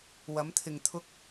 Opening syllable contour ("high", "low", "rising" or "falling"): rising